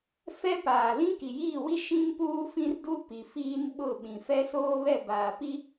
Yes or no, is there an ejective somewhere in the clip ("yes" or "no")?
no